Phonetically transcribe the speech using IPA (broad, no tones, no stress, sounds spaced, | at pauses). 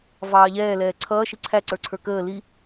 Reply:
v ɑː ʎ ɛː l ɛː ǀʰ ʌː ʃ i ǀʰ æ ǀ ə˞ ǀʰ ə˞ k əː l i